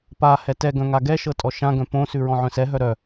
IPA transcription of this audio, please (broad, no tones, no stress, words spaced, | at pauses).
pa hɛtɛɡœ̃ ŋaɡɛʃɤ tʼɔʃãɡœ̃ põsʉ ɹɔ̃ʕœ̃sɛɦœ ɾœ